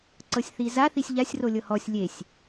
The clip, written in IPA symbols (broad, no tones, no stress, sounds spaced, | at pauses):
ǀ ɤ sʲ θ i z a θ i sʲ ʎ a sʲ r o lʲ ɤ h ɔ sʲ lʲ e sʲ